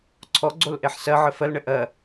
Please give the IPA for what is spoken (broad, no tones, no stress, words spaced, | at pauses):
ǀʰɔɡ͡ǀol ʔeħsɜʕɘ fɜlɳɘ ʔɜ